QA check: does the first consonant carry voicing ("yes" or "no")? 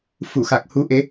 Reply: no